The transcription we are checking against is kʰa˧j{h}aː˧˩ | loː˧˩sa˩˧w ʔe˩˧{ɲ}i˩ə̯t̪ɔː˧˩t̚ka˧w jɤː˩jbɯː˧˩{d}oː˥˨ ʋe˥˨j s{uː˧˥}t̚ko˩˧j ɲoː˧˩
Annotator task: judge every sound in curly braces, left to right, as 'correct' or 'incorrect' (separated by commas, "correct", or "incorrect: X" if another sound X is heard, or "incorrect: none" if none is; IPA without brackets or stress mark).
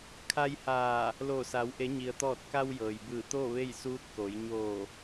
correct, correct, incorrect: t̪, correct